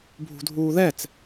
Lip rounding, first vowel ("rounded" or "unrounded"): rounded